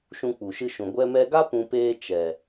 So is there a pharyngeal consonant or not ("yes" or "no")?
no